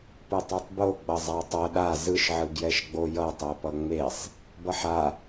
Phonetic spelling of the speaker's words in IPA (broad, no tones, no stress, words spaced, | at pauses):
pɯtˤotˤboɡ͡bʌ zˤatˤʌ ɗa zɯʃʕɯ ɡjɛʃɡ͡bojʌ tˤopʌŋ͡mesˤ | bʌħa